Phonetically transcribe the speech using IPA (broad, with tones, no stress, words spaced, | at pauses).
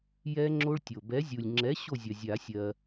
jɛ˦˥ŋ͡ǁo˦˥ɭtʲo˨˩ bɛ˨˥zʲu˨˩lʲ ŋ͡ǁɛ˨˥ ɕo˥˨zʲɐ˨˩zʲa˨˩˦ sʲɜ˧